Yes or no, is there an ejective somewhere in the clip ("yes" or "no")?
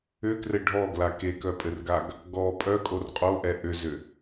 yes